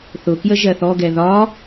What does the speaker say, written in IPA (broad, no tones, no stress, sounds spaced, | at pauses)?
θ ʊ k j ə ʒ ɜ θ ɔ ɡ ɛ ð ɒ